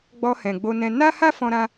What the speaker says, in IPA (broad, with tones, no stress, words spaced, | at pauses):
ɡ͡bɔ˧hɛ̃˨ɡ͡bo˧nɛ̃˧ na˦ha˦ fɔ̃˧ɾã˧